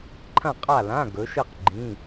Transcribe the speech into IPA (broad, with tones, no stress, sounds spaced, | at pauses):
ǃʰ ɐ̃˥˨ qʼ a˥˨ l ã˧˥˧ ɡ ɵ˨˦ ʃ ɨ˥˨ q ɡ͡ǃ ĩ˧˥˧